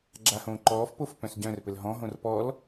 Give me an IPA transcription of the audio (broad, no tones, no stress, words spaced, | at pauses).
ɡ͡ǁahõːǃɔːfpof pœ̃sɟœ̃rpɘl ɦɔ̃ɦõr pɔl